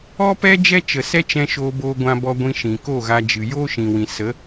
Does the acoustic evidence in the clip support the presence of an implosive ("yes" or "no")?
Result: no